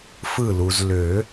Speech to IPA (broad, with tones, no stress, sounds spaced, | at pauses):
f ɯ˧˩ l u˩ z l ø˨˩˦